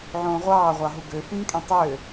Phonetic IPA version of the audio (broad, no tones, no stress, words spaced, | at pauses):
ʕõːʁʷɑːʁʷɑɦu ɡø fĩːkʼẽtˤøː